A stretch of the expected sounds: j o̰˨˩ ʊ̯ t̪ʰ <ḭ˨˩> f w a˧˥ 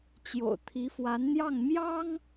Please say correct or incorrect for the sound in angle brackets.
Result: incorrect